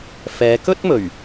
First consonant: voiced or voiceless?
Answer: voiceless